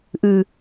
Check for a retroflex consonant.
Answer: absent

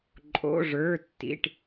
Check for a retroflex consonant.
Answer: present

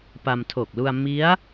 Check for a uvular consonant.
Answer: absent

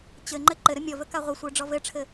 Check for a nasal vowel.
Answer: absent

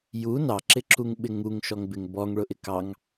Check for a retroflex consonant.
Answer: present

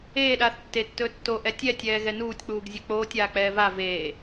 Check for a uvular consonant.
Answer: absent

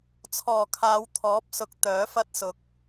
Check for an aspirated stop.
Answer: present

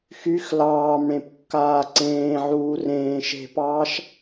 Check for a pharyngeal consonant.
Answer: present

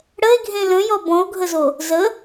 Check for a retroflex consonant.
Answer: present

